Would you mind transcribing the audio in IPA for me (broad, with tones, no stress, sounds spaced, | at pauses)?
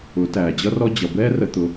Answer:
ʊ˨˦ t æː˨ d͡ʑ ʌ˦ r ɔ˦ d͡ʑ ʌ˨ b ɛː˦ r ə˧ t̪ ʊ˧